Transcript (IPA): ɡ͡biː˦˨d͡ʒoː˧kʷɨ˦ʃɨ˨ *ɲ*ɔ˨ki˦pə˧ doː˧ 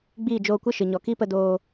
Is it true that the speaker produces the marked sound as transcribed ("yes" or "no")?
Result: yes